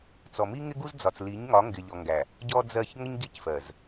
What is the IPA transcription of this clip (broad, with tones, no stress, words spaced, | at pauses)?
t͡sɔ˨ mi˦ŋɪ˦ɡu˦z d͡zɒ˨t͡s li˨˦ɲ ŋɒ˨˦ŋɡɪ˨ʎɔ˨ŋɡæ˨ | ɟɔ˦d͡zɜ˦˨ç ŋə˦ɲ ɡi˦cfɜ˨z